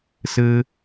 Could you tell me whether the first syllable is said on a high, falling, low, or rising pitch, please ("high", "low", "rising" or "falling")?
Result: low